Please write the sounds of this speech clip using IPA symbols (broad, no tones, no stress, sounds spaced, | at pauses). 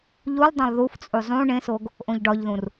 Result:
ʎ u lˠ dˤ õ lˠ ð u f t͡sʼ u zˤ ũ ɳ ẽ s o ɡ | ʔ õ ʎ ɖ ɒ ʎ ð ũ r